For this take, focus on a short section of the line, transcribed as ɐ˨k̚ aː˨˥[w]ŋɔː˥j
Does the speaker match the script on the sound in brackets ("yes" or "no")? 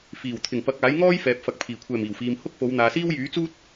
no